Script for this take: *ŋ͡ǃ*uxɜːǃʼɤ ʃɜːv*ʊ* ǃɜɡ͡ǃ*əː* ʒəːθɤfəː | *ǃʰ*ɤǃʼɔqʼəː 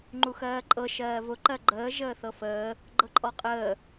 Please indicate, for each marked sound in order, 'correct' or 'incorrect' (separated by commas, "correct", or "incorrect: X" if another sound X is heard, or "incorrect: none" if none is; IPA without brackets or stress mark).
correct, correct, correct, incorrect: ɡ͡ǃ